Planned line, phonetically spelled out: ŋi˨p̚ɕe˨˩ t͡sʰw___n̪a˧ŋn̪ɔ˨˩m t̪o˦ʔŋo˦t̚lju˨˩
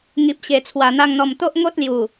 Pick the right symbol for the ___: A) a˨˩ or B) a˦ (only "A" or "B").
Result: A